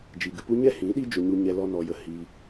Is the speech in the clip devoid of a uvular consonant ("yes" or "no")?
yes